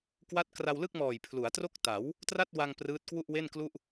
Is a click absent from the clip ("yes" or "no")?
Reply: yes